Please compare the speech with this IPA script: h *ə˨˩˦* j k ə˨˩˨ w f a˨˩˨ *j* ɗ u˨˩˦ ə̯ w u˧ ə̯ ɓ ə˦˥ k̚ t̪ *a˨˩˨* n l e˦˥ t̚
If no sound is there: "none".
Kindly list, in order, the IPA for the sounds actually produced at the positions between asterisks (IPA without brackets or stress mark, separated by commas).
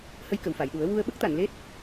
ə˧, j, a˨˩˨